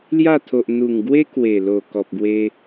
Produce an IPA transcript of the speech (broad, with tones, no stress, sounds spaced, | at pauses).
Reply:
l j a˥˧ t̪ʰ o˨ ʔ n̪ u˨˩ ŋ ɡ w e˦ k w e˨˩ l o˨˩ k ɔ˨ p̚ ɡ w e˧